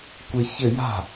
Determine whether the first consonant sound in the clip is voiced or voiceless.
voiceless